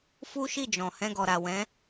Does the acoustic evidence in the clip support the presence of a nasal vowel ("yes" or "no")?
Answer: yes